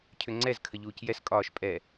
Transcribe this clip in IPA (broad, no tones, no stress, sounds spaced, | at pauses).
cʰ ʏ ŋ͡ǀ ɛ z kʰ ə ʎ uː c j ɛ s kʼ ɒː ʃ pʼ ɛ